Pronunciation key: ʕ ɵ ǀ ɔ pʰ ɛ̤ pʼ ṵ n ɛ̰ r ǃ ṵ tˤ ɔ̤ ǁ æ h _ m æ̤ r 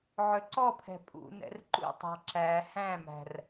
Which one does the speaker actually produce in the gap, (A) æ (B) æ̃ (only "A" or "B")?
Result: B